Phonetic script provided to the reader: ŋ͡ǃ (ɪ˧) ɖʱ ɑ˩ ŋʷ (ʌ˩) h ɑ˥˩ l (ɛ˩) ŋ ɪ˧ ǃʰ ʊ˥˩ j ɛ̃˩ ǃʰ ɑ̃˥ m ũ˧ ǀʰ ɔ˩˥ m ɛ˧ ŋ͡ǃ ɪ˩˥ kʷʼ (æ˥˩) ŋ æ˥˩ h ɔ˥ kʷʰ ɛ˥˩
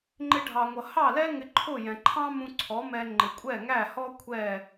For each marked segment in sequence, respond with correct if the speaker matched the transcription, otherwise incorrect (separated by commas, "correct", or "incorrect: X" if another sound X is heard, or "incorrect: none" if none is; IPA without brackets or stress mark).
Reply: correct, correct, incorrect: ɛ˥, incorrect: ɛ˥˩